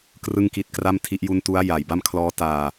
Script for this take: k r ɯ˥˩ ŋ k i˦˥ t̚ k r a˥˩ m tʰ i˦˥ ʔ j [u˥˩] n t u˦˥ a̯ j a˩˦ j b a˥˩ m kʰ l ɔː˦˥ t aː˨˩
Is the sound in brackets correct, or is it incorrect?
incorrect